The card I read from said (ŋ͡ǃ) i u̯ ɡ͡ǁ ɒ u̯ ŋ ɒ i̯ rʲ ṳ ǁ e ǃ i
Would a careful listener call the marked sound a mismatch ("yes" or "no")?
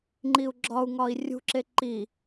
no